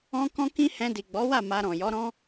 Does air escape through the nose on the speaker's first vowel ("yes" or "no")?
yes